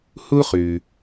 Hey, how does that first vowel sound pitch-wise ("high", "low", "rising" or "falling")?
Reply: high